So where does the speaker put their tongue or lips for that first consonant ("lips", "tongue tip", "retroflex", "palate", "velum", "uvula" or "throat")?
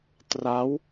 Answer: tongue tip